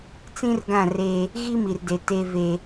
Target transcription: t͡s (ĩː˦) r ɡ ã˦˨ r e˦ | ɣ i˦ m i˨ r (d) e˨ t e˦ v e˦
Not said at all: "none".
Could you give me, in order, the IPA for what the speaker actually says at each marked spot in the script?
ĩ˦, d

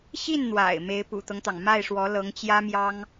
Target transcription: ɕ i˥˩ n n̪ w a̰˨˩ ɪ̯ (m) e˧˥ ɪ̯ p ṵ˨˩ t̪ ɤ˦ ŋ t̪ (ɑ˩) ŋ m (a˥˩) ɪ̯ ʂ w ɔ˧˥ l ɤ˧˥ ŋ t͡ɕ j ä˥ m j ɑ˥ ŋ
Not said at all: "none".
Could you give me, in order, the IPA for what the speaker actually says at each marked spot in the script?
m, ɑ˩, a˥˩

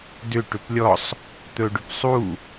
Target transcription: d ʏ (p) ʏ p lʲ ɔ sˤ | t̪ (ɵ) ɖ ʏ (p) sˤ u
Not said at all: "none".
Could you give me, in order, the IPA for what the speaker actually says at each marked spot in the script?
ʈ, ɵ, p

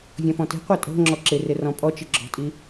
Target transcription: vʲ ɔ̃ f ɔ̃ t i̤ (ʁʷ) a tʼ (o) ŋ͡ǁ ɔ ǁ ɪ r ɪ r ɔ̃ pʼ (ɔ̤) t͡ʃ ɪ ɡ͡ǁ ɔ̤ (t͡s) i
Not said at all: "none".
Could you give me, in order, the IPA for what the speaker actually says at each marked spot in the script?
qʷ, o̤, ɔ, tʼ

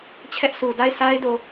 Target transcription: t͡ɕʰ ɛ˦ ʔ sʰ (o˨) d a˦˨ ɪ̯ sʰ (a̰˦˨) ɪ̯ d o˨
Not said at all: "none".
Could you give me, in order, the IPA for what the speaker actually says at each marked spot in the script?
u˨, a˦

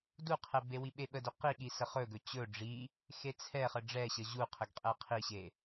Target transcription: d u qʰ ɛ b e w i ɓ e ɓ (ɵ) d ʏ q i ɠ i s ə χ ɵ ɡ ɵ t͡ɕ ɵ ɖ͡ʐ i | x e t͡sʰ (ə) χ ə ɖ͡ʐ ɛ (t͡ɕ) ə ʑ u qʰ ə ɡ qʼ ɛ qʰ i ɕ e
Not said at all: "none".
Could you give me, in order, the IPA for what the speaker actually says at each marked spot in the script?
ə, ɛ, ɕ

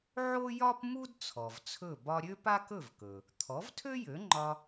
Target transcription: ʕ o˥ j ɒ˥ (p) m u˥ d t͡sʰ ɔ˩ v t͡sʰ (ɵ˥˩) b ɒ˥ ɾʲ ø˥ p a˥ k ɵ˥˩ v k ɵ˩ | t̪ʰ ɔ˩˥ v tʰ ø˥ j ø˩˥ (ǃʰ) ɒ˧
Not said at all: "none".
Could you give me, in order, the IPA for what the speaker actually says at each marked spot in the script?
p, ɵ˥˩, ŋ͡ǃ

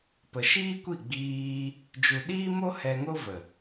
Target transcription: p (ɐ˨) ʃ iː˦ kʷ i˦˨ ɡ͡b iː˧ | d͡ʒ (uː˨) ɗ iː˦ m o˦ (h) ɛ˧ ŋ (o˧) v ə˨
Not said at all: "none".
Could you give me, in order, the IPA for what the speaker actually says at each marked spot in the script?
ə˨, u˨, h, o˦

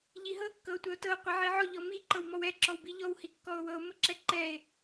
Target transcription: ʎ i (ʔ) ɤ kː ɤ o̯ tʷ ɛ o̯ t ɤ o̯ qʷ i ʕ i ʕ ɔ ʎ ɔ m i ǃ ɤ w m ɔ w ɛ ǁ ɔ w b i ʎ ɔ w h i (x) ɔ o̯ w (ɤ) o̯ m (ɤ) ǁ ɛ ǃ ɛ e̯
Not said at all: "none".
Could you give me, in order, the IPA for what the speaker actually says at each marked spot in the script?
ɦ, kː, ɤ, ɤ

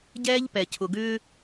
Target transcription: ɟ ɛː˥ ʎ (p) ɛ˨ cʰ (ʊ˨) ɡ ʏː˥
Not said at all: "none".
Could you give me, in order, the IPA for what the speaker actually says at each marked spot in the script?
p, ʊ˨

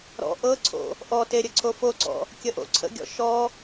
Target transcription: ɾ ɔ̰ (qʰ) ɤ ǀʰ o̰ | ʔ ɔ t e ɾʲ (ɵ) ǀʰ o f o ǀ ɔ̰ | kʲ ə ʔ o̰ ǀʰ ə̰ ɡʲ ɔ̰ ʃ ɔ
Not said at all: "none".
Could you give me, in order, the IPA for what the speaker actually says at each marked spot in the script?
ʔ, ə

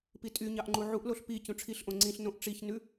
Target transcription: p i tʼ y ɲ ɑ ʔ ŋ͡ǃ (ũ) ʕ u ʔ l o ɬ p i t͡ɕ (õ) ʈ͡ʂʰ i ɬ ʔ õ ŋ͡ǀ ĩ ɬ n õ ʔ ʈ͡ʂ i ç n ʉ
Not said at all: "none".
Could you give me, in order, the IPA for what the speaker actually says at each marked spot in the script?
u, ũ

